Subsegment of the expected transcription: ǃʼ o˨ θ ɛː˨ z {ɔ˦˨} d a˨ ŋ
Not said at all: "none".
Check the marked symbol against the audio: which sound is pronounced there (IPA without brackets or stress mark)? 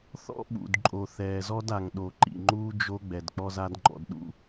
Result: ɔ˦